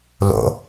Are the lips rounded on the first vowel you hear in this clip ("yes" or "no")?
yes